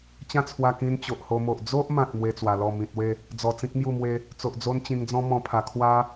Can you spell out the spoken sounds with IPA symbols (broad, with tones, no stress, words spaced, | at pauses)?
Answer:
t͡ɕã˥˧t͡sʰwa˧kĩ˧n t͡ɕo˨ʔho˧mo˨ʔ d͡zo˦ʔmã˨t̚ mwe˦t͡swa˧ lɔ˥˧ mĩ˨t̚we˥˧ | d͡zɔ˨˩t͡sĩ˦k̚ mju˥˧mwe˦ | t͡so˨ʔd͡zo˦n t͡ɕĩ˧ŋd͡zɔ̃˦mɔ̃˧ pʰa˧ kʰwa˦